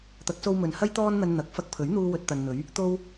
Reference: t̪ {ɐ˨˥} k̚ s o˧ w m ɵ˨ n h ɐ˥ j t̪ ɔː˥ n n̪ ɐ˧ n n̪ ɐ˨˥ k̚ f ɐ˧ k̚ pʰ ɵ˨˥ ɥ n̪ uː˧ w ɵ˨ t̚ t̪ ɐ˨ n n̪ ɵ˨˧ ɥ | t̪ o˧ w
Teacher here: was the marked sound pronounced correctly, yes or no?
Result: yes